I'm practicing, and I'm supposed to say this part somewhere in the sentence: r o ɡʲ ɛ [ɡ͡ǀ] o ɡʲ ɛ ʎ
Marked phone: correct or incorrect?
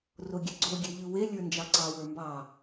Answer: correct